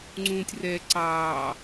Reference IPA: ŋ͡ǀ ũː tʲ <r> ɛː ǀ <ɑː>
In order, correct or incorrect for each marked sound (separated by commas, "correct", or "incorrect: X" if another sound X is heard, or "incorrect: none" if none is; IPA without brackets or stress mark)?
correct, correct